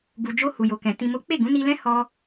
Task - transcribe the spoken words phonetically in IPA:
ɡ u˨ d͡ʒ o˧ h u˨ j o˨ k ɛ̃˨ t ĩ˨ m o˨˦ k͡p e˦˨ ɡ ũ˨˦ n i˧ l ɛ̃˦ h ɔ˧

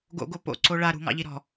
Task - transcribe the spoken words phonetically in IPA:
ɡ o̰ ɡ o p o̰ ǀ o ɭ a ɾ ṳ ŋ ɑ̰ ʎ i ɾ ɔ̤

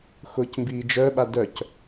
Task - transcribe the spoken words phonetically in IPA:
x ʊː c m b iː d͡ʒ œ ɓ a d œ c

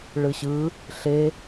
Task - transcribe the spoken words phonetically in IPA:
ɭ ɯ ɕ ɯ | ɬ e

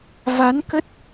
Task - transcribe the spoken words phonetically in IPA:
v a˨˦ n k ə˦˥ t̚

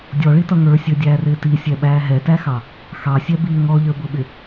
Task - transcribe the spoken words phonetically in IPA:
dʲ ɔ ɭ i t ʌ ŋ ə˞ sʲ ə˞ dʲ æː r ɪː t i sʲ ɛ ɓ æː ɦ ɛ t æ x ɑ | x ɑ sʲ ɛ b iː ŋ ɔ ʎ ə˞ b ʊ ɓ ɪ

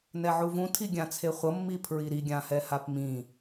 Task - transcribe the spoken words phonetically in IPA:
n ɛ ʕ u v ũ tʰ i ɡʲ ã t͡sʰ e χʷ ʌ mː i pʰ ɹ i ɾ i ɡʲ ã h ɛ h a p m ĩ

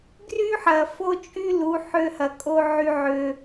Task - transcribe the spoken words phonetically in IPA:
ɡ r y˦ ħ ɐ˨ f o˦ t͡ʃʼ y˦ l u˨˦ ħ ø˧ h ɐ˨ kʼ o˧ ʕ y˧ ʕ ø˧

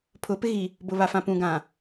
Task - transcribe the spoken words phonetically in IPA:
pʰ ʊ˨˦ p ɪ˦ ɣ i˨ | b ʊ˨ β a˨ f ã˨ p ũ˨ ɡ ã˨

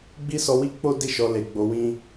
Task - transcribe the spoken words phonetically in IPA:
ɡ͡b i˦ s ɔ˧ w i˦ k͡p o˦ d i˦ ʃ ɔ˧ l e˨ ɡ͡b o˨˦ w ĩ˦

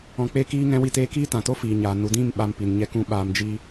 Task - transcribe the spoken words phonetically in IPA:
ɔ̃˨ k͡p e˧ k iː˧ ŋ ɛ̃˧ w i˧ t eː˧ k iː˦ t ã˨ t o˦ f iː˨ ɲ aː˨ n u˨ d ĩ˦˨ m ɓ a˧ m p i˨ n ɲ ɛ˧ k ũ˧ ɓ aː˧ m d͡ʒ iː˦

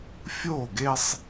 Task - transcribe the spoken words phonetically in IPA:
fʲ o˥˩ ɡ e˦ sˤ

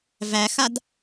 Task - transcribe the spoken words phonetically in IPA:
v æ x a d

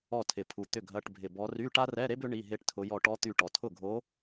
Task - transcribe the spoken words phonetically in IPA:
ɔ˧˩ tʰ ɪ˩ pʰ u˩ t̪ ʏ˥˩ ɡʱ ɐ˧˥˧ ʈ bʱ ɪ˧˩ b ɔ˧˥ r y˧˥˧ ʈ a˥ r ɛ˧˥˧ ɾ e˥ b ʏ˧˥ ɳ i˧˥˧ ɦ e˥ ʈ tʰ ʊ˧˥ j ɔ˧˩ ʈ ɔ˧˥ t̪ y˧˩ ʈ ɔ˩ tʰ ʊ˥˩ ɡʱ o˧˥

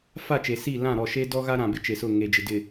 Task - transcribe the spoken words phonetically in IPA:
f a˦˨ t͡ʃ e˨ s i˦˨ l ã˦˨ ɾ ɔ˦˨ ʃ e˦ d ɔ˦ ɣ a˦ ɾ ã˨ b ɪ˦ t͡ʃ e˨ s ʊ˦˨ ŋ e˨ d͡ʒ ɪ˨ d ɪ˨

